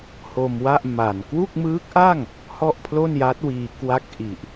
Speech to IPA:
h o˧ m w a˥˩ ʔ m a˨˩ n k w u˥˩ k̚ m ɯː˦˥ k̚ ʔ a˥˩ ŋ | h ɔ˥˩ ʔ pʰ l o˥˩ n j a˦˥ t̚ w iː˧ k w a˥˩ k̚ ʔ i˨˩ ʔ

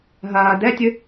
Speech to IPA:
ɦ ɐː d ɛ tʲ ɨ

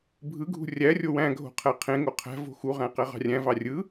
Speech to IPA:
bʱ ɯ ɡʱ ṳ rʲ æ rʲ o w æ̃ ɡʱ o̤ qʰ æ qʰ ẽ ŋ o qʰ æ̤ v o̤ x u ʁ æ̃ q æ ʁ ɑ̤ rʲ æ̃ v ɑ rʲ ɯ

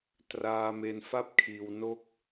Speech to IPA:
t r aː˧ m e˧ n f a˥˩ p̚ kʰ iː˧ w n o˥˩ k̚

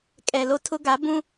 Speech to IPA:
kʼ ɛ˨ l o˦ tʰ ʊ˦ ɡ a˨˦ b ũ˦

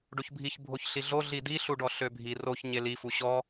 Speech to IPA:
ɖ o ç bʱ i ç bʱ o ç ɬ i ɮ o ɮ i d i ɬ u ɖ ɔ ɬ ø bʱ i r o ç ɲ e l i f u ɕ ɔ

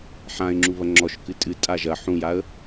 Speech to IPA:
ħ ã ɪ̯ ŋ͡ǁ u β ɐ ŋ͡ǁ ɔ ʃ k ɨ tʼ ɨ tʼ a ʒ ɐ ħ ũ j a ə̯

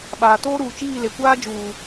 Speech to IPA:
ɓ aː˨ t oː˦ ɾ uː˨ t͡ʃ iː˦˨ l e˨ kʷ aː˦ d͡ʒ uː˨

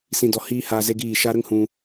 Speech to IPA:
s ĩ˧ d ɔ˧ h iː˦ h aː˧ z e˦ ɡ iː˦˨ ʃ a˦ ɾ ə˦ ŋ h ũ˧

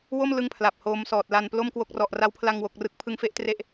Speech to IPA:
w o˥˩ m l ɯ˥˩ ŋ pʰ l a˨˩ p̚ h oː˦˥ m s ɔː˨˩ t̚ l a˧ n p l o˥˩ m k w o˥˩ k̚ r ɔ˨˩ ʔ r a˦˥ w pʰ l a˧ ŋ w o˨˩ k̚ r ɯ˨˩ k̚ pʰ ɯ˦˥ ŋ f e˦˥ ʔ t r e˥˩ ʔ

